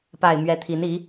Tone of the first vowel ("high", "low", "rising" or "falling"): low